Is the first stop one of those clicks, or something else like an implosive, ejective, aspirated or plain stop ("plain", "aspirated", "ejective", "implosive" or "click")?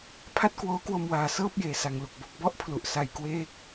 aspirated